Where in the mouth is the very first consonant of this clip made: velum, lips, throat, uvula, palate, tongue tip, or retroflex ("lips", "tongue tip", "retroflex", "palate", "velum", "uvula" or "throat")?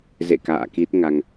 tongue tip